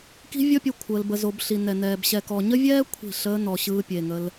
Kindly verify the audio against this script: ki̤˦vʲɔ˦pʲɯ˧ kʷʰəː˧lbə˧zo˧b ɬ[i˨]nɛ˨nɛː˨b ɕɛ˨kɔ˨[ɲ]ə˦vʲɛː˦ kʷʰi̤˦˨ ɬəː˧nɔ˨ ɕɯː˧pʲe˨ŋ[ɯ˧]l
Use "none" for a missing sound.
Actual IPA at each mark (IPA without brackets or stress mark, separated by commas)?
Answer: i˨, ɲ, ə˧